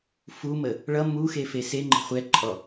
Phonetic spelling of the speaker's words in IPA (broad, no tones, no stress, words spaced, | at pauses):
fumə | ɭʌ muxefe seŋ͡ǃə̤ χʷɛǃʼɔ